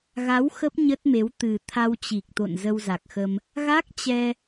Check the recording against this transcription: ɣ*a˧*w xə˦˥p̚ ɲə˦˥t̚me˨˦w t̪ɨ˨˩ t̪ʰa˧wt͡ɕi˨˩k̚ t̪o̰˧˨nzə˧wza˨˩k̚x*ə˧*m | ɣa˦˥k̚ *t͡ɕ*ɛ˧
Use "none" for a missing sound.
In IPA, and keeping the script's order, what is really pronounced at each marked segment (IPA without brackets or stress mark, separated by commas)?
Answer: a˨˦, ə˧, t͡ɕ